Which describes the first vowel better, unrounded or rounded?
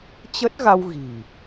unrounded